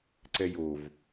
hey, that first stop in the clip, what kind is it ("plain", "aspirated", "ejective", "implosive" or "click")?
click